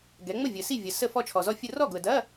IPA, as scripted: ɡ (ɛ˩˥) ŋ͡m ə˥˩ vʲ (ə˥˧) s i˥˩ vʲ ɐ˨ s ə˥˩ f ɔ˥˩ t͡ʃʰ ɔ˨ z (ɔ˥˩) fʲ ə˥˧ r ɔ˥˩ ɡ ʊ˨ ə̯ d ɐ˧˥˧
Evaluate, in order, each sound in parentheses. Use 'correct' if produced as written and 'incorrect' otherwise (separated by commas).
correct, incorrect, correct